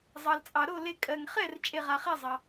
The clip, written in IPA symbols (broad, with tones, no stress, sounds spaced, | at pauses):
zˤ ɑ˩ l t͡sʼ ɑ˩ ɾ o˥˩ l e˧˩ kʼ ɜ˩ ŋ χ ɛ˥˩ r t͡ʃʼ e˧˩ ʁ a˩ χ ɛ˥˩ zˤ ɑ˩